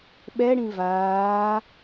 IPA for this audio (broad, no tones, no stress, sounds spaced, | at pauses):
ɓ ɛ ɽ ĩ v aː